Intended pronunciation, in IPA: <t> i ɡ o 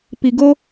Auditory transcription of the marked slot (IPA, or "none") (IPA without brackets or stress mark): p